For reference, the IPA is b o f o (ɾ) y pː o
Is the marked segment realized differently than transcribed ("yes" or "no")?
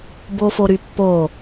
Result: no